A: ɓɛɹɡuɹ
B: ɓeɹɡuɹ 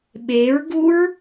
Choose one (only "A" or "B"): B